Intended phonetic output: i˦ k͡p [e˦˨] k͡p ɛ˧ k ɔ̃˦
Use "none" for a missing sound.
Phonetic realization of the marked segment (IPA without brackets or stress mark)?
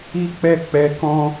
ɛ˦˨